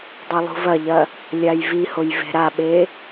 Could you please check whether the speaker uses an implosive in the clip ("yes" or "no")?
yes